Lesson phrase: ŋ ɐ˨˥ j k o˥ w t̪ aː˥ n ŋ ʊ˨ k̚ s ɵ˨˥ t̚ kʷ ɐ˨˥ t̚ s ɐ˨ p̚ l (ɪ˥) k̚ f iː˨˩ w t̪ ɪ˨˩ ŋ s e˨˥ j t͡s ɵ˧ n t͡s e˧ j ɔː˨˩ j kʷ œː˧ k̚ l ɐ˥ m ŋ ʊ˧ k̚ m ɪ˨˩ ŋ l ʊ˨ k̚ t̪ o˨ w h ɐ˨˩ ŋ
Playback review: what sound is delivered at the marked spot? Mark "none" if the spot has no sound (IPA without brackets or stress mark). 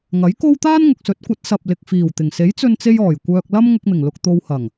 ɪ˨